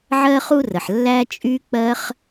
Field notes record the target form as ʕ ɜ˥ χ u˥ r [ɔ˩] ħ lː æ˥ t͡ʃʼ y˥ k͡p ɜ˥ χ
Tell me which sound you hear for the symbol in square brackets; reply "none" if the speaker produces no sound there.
ə˩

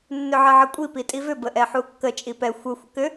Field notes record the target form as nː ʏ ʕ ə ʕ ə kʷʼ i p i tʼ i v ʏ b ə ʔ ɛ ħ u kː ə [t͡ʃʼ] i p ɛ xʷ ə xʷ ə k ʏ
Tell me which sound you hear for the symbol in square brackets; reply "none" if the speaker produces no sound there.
t͡ʃʼ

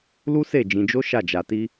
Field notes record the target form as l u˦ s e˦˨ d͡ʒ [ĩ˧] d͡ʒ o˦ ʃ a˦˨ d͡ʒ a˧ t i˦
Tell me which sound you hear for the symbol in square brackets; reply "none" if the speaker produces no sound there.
ĩ˧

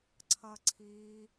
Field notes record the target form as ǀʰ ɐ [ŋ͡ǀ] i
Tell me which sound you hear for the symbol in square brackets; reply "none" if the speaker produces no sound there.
ǀʰ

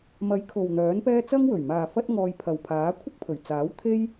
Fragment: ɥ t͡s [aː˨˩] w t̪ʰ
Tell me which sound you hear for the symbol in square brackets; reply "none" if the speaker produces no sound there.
aː˨˥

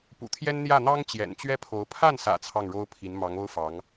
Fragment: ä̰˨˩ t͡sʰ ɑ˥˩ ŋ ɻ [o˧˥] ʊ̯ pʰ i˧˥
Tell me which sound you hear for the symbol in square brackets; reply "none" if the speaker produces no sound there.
o˥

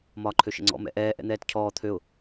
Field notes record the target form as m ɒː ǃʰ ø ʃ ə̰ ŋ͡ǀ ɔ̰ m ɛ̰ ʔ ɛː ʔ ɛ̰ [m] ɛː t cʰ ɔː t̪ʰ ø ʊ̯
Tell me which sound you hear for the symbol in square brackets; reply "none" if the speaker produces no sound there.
n̪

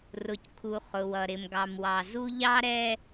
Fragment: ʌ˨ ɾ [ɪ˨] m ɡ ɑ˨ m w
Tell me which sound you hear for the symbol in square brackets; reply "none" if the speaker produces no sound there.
ɪ˨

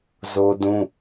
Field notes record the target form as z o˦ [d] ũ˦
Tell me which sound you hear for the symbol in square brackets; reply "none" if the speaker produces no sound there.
d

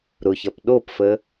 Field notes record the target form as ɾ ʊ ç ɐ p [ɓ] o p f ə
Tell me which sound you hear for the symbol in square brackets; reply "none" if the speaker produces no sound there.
ɗ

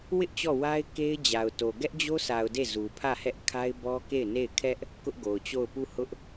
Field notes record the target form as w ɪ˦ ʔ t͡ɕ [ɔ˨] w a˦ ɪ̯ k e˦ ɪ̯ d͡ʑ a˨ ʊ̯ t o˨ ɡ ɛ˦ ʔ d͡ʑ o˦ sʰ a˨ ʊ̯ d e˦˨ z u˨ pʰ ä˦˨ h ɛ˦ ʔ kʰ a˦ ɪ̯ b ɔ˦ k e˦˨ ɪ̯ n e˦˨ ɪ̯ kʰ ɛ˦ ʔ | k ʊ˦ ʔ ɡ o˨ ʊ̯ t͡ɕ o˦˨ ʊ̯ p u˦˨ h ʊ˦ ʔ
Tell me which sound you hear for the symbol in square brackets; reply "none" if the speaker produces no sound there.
ɔ˦˨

